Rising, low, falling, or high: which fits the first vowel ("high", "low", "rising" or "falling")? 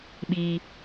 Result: high